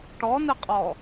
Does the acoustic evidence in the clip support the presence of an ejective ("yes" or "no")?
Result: yes